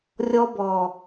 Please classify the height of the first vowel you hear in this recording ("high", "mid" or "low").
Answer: mid